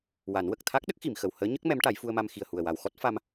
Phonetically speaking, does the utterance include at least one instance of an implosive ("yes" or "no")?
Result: yes